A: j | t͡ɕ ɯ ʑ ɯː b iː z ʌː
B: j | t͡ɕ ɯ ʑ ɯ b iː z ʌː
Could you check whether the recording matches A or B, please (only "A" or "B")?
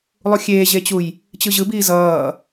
B